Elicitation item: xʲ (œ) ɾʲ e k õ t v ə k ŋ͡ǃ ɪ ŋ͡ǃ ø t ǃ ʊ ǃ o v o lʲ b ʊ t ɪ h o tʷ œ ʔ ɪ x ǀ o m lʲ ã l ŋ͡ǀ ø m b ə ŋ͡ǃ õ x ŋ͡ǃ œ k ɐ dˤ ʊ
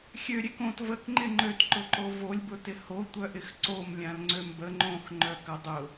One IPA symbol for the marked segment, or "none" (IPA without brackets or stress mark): ø